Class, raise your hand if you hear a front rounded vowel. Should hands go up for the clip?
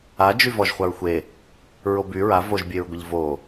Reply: yes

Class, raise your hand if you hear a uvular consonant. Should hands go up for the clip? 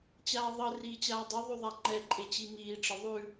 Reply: no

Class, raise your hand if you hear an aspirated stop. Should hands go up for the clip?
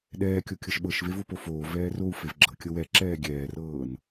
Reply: no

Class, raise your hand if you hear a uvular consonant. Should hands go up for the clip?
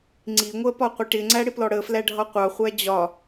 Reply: yes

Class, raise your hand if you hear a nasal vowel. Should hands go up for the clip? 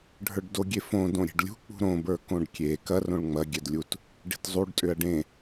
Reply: yes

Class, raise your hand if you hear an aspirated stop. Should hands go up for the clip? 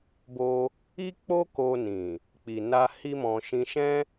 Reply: no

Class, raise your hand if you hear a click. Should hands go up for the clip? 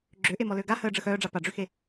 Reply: yes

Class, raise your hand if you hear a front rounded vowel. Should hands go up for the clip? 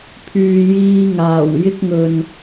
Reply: yes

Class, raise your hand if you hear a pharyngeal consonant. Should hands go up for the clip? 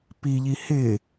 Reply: no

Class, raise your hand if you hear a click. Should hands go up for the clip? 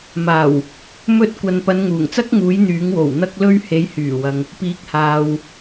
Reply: no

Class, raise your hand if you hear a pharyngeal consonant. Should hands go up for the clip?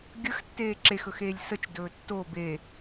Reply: no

